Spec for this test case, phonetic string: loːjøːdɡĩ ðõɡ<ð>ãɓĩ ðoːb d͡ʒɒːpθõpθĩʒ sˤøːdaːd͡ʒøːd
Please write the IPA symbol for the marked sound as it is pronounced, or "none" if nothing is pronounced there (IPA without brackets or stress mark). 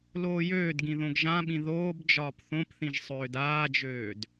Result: ʒ